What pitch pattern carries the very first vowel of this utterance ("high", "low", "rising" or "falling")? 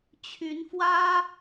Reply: rising